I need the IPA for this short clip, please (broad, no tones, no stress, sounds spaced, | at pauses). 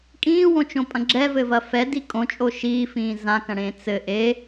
kʼ ĩː w õ t͡ʃ õ pʼ ɐ̃ ɡ͡ǁ ɛ v ɘ v ɐ f ɛ d i kʼ õ t͡ʃʼ o ʃ iː f ĩː z ã k ɐ̃ ɽ ẽː t͡s ɘ ʔ e